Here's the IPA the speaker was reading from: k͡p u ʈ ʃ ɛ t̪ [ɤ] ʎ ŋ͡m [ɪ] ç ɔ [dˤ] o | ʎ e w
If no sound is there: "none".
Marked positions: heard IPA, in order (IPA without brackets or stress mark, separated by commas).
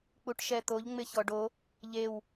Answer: o, ɪ, ɖ